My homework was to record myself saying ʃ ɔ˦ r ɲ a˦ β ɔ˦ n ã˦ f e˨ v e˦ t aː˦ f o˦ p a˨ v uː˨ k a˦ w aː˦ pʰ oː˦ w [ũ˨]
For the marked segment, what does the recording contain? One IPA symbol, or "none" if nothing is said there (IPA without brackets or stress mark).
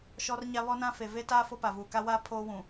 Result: ũ˨